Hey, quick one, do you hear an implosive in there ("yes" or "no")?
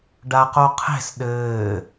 yes